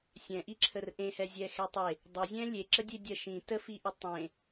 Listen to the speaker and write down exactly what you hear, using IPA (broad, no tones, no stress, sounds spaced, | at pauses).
sʲ ɛ̃ ʔ i ǁʰ ə r ʔ ẽ h ɛ zʲ ɛ x ɛ tˤ e | dˤ ɵ zʲ ɛ̃ lʲ e ǁ ə dʲ e dʲ ɜ ʃ ĩ t ə f i ʔ ɵ tˤ ẽ